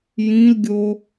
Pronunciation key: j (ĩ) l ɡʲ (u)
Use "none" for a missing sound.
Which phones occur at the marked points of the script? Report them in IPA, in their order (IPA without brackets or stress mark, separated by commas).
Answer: ĩ, o